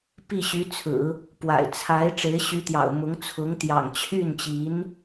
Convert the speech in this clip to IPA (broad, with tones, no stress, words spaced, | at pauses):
pi˥˩ɕy˧˥t͡sʰɹ̩˨˩˦ | pwa̰˨˩ɪ̯t͡sʰa˧˥ɪ̯ ʈ͡ʂe˧˥ɪ̯ɕy˧˥t̪jɑ̰˨˩ʊ̯ mʊ˧˥ŋt͡sʰʊ˧˥ŋ t̪jɑ̰˨˩ŋt͡ɕʰy˥˩nt͡ɕi˧˥n